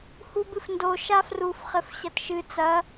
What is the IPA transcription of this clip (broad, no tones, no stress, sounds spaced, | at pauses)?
h u b ɨ f n d o ʃ a f r u f χ ɘ f ɕ ɐ t ʃ ɨ t͡s ɐ